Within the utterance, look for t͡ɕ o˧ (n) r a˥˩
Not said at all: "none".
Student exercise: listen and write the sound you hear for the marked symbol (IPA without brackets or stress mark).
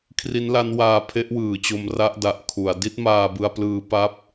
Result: m